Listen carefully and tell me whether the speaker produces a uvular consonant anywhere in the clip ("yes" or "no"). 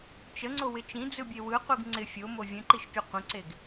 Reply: yes